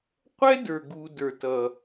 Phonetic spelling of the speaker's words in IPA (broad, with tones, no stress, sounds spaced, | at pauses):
qʷ ɛ˦ d ə˞˨ ɡ u˧ d ə˞˨ t ʌ˨